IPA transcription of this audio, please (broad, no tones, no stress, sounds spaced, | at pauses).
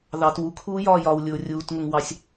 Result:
ð ɑ t w u kʰ uː j ɒː j ɒ w lʲ ʊː rʲ uː t ŋ ʊ ŋ w ɑ sʲ